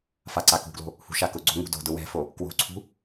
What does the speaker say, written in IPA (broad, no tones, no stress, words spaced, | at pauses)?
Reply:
faǀakṳɡlo̤ | hṳʃakʊɡ͡ǀo̤ ŋṳdo̤dʊ wɛ̤fo | kwo̤ǀʰṳ